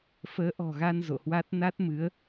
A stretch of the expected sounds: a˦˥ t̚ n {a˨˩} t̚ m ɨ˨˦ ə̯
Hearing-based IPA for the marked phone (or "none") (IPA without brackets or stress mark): a˦˥